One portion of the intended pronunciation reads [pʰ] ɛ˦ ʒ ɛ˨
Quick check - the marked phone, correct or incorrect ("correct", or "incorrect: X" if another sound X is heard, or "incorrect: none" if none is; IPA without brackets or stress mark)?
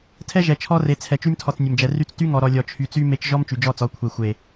incorrect: tʰ